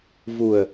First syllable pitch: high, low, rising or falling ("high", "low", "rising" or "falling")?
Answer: low